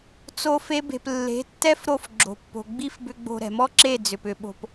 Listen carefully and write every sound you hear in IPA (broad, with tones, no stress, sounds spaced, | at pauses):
t͡s o˦ f e˦ b e̤˧ p lː e̤˨˦ tː ɛ˦ f ɾ o˦˨ f ɡ͡ǁ o̤˨ pː o̤˨ ɡ͡b i˦ f b ʏ˧ ɡ͡b o̤˧ ɾ ɛ̤˨ m ɔ˦ ǁ e˦˨ d͡z ʏ˨ p ʏ˧ ɓ o̤˧ p